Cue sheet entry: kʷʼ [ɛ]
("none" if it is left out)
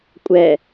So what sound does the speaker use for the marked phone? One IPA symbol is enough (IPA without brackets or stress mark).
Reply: ɛ